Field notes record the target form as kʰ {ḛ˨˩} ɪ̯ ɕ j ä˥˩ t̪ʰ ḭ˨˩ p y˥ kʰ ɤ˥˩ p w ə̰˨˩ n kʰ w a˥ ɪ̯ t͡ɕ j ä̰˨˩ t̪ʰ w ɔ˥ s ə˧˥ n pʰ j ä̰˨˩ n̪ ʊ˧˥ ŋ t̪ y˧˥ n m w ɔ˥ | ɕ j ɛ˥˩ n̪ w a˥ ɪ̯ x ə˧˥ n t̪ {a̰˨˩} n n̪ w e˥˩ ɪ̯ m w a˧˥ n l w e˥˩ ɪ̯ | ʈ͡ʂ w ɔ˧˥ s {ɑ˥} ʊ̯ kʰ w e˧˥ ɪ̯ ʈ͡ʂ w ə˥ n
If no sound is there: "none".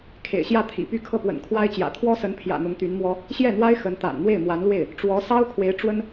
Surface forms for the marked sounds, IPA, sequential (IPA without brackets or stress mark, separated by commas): ḛ˨˩, a̰˨˩, ɑ˥